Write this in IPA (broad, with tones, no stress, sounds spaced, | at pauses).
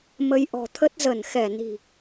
m ə˧ j ʔ ɔ̤˨˩ t̪ʰ ə˦˥ t̚ z ə˧˩ n x ɛ˧˩ n i̤˨˩